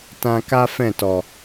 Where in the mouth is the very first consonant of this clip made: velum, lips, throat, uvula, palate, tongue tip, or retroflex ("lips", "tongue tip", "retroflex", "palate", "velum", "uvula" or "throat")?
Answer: tongue tip